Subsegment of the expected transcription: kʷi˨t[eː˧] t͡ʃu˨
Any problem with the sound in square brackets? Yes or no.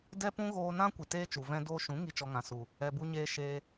no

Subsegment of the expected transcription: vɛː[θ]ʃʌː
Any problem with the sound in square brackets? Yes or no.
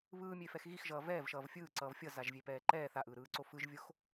yes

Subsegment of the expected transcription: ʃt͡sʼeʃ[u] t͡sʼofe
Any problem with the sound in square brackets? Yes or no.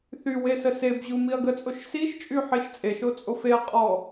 yes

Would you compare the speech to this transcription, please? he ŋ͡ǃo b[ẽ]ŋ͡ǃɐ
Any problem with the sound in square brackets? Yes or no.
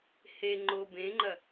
no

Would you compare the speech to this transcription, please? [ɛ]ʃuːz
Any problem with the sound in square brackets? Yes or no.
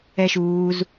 no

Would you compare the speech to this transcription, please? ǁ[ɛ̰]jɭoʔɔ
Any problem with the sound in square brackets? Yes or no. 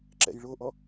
no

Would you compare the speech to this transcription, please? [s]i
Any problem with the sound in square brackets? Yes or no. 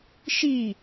yes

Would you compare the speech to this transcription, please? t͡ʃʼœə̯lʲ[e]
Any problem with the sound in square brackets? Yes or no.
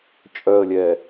yes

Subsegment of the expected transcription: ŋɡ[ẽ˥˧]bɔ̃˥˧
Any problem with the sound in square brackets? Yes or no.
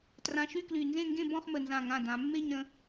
no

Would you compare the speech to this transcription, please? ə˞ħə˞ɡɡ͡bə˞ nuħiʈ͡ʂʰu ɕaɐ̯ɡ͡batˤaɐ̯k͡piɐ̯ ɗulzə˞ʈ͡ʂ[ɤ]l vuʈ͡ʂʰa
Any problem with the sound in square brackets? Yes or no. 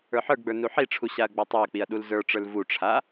yes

